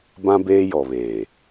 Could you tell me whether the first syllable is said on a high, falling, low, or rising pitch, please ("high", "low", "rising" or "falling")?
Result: high